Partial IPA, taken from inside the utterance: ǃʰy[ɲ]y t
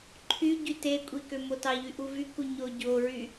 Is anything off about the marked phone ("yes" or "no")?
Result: yes